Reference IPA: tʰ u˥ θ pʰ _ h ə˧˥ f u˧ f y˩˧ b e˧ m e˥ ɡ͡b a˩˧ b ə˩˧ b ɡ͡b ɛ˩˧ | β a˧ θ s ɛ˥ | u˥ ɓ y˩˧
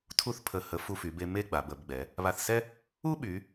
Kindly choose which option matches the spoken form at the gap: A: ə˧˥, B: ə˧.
B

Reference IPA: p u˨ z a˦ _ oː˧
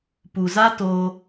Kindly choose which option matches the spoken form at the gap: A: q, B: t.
B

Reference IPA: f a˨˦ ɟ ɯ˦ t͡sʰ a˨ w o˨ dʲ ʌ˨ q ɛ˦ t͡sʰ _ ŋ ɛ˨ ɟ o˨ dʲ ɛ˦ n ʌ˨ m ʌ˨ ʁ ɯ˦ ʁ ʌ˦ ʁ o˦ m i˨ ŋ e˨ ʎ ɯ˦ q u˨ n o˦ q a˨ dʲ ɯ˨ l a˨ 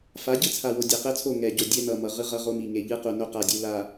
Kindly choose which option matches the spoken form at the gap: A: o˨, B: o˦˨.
B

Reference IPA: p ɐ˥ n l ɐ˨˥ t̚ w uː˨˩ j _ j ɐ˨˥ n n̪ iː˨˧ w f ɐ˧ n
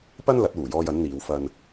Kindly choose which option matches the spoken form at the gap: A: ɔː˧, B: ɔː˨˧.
A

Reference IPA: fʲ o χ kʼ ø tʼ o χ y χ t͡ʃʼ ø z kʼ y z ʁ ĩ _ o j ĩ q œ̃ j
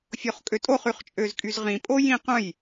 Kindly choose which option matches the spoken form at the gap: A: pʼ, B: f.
A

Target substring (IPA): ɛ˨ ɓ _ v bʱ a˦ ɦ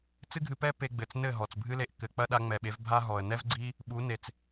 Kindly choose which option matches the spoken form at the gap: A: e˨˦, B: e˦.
A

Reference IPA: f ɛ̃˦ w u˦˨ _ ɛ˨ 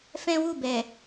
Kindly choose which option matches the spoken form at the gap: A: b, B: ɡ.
A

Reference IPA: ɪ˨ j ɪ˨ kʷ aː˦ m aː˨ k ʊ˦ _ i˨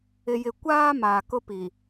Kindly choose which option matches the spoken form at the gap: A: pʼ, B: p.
B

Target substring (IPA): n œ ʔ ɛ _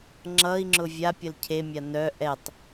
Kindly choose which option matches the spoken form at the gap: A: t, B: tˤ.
B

